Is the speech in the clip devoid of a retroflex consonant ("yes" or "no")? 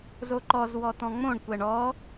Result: no